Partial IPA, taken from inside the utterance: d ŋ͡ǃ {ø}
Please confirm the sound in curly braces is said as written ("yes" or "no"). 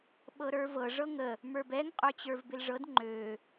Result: yes